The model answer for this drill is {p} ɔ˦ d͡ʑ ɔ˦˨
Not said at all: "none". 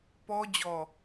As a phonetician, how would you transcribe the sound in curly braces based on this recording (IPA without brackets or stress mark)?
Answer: p